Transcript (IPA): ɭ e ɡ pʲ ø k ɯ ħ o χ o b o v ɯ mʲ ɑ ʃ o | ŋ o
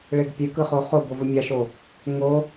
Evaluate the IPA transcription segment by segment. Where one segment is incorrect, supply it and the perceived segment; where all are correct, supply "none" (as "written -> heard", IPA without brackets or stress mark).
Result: ħ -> χ